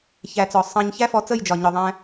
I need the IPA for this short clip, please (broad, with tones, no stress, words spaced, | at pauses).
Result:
çæ˨˦t͡sɔ˨ sˤɑ̃˦ɲ çæ˦fɔ˧ t͡sə˦˨jd͡ʒɒ˨ ɲɔ˨ ðˤæ̃˧